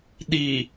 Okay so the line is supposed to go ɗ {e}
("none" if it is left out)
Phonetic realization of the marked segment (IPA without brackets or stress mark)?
i